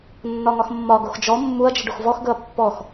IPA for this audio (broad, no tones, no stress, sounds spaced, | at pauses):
nː ɒ ŋ ɒ x mː ɒ ɡ o x d͡ʒ ɔ mː u ɐ̯ d͡ʒ ɪ ɖ o x v ɔ x ɡ ɵ ɐ̯ pː ɔ x